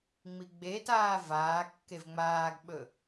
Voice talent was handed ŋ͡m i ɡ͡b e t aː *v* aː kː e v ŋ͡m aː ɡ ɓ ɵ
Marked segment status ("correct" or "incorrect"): correct